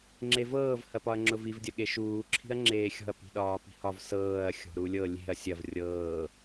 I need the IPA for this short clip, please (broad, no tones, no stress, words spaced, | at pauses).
ŋ͡ǁevɤːv hɐpɒɐ̯ŋ͡ǁʊviv dʲɐɠeʃuː ǁʰi̤ɐ̯ŋ͡ǁeːxʲɔ̤ɐ̯ pi̤ɗɒːpi̤hɒv sɤːɐ̯ xʲɔ̤ɾulʲɤ lʲe̤ɐ̯ sʲɐv rʲɤː